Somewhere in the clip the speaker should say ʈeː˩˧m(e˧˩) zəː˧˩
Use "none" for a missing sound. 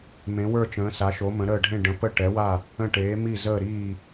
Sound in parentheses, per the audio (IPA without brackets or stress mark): i˧˩